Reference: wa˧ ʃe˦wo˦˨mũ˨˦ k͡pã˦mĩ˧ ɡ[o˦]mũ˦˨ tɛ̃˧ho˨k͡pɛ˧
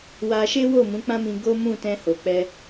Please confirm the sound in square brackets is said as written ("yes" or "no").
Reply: yes